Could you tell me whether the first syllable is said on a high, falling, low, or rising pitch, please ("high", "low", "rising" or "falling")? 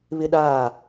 high